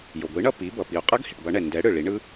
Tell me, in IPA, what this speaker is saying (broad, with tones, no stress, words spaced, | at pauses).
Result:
jo˩ɡʷi˩˥ɳʌ˥˩ pi˩˥bʌ˩pi˩o̯ qʼʌ˦˥ɡhi˩ʈbʌ˨˩˦ɳɛ˩ ndɛ˩˥ɽɯ˩ ɭi˩˥ɳɯ˦˥